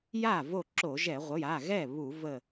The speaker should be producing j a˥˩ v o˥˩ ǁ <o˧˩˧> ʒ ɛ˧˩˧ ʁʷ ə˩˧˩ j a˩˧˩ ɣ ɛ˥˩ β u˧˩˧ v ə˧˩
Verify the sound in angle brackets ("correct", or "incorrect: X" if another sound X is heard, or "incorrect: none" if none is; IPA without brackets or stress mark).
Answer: correct